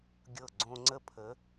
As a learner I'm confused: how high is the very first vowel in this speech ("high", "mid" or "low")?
mid